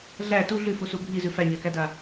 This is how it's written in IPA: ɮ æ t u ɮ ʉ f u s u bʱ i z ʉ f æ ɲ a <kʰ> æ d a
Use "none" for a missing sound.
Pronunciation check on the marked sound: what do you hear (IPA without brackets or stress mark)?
k